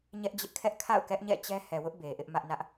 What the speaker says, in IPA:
ɲɛ˦ʔ d͡ʑɪ˦ʔkʰɛ˦ʔ kʰa̰˦˨ʊ̯kɛ˦ʔɲɛ̰˦˨ t͡ɕɛ˦ hɛ˨wʊ˦ʔ be˨ʔɪ˦ʔ mä˦ʔnä˦ʔ

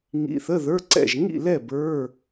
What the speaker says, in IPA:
ŋḭ˧˥˧θə˧˥˧ ðə˞˧˥˧ǀɛ̰˥˨ʒ ŋḭ˥˨lɛ˥˨ bə˞˧˥˧

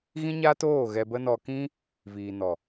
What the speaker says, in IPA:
ɣĩ˦ɲaː˦t oː˦˨ ɣɛ˧bə˦nɔ˧ kĩ˦ | viː˨nɔ˨

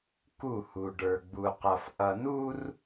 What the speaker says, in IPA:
ku˦˨hu˨ ɖə˞˨ɡ͡bu˨qʌ˨f ʔʌ˨nu˦r

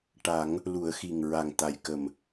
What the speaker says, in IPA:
ʈa˨˩˦ŋ | lu˨˩˦ə̯xi˨˩ŋ ɹa˨˩ŋ t̪a˨˩jkə˨˩m

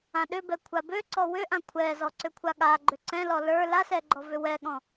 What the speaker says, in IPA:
ãɗʏbɛ kʷʰabøǀɔ wʏʔã kʷʰɛzɔ ǀʏkʷʰaɠaɡ͡ǃʏ ǀɛ̃lɔ lə˞ lasɛ ɡ͡ǃɔvʏwɛɠɔ̃

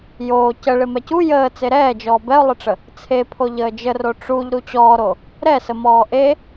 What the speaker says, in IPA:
joː cəɭɪ mɛcu jəː t͡seɾɛːd͡ʒɔː bɛʊ̯lˠɪʈ͡ʂə | t͡sʰepʰo ʎəːd͡ʒəro ʈ͡ʂuʎ ɾut͡ɕɔːɾo | ɾɛsəmɔː ʔe

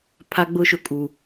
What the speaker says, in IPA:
pʰa˦ɡ͡bʊ˦ʃʊ˨ kʼu˨

